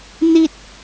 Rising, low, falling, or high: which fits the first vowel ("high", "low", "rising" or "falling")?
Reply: high